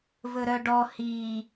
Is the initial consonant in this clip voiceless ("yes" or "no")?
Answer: no